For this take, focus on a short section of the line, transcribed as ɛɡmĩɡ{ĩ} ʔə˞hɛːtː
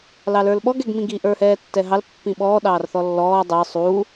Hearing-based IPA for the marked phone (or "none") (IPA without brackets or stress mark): i